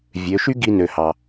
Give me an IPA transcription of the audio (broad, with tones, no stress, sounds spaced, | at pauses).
vʲ ø˩˧ ʃ y˥ ɡ i˧ n ø˩ h ɑ˩